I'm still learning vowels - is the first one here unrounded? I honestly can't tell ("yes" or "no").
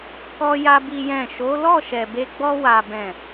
no